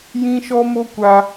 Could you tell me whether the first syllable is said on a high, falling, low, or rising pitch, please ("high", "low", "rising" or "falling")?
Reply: high